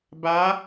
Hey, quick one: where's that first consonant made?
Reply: lips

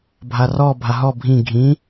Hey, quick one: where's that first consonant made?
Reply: lips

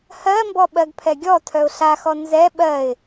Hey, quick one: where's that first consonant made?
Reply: throat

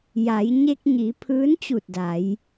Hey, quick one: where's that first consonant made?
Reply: palate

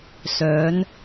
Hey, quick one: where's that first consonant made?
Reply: tongue tip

